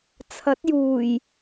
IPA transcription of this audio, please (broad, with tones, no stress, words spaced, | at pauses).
t͡sʰɐ˨˥t̚juː˨˩j